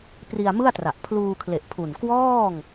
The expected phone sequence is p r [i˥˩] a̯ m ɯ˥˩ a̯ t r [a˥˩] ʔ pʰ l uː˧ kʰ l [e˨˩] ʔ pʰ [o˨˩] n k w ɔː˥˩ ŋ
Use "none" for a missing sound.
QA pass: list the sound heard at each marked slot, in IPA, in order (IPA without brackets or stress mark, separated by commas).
i˧, a˨˩, e˨˩, u˨˩